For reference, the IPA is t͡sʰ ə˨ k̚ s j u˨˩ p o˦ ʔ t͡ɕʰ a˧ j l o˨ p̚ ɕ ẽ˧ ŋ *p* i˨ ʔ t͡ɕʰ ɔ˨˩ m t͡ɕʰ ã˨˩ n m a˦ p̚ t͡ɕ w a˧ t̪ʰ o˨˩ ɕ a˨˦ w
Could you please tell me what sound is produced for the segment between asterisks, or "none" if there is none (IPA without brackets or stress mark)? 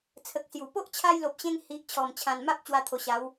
h